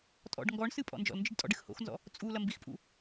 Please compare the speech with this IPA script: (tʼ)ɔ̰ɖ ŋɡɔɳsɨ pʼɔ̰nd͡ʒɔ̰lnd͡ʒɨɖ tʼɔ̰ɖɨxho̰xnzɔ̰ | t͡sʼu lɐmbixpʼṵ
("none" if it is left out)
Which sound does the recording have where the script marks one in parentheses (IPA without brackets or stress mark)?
tʼ